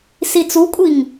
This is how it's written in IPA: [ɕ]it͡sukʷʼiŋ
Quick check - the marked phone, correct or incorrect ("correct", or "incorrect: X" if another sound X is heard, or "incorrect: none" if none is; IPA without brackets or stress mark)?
incorrect: s